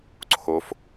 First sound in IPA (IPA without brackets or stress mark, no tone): ǀʰ